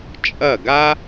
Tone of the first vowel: falling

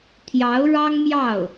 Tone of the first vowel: rising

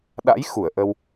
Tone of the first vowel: rising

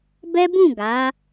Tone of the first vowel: high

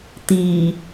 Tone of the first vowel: low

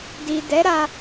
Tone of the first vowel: low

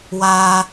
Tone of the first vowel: high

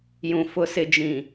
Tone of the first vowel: low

